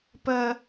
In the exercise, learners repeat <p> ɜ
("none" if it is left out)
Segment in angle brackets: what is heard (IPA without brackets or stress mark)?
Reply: p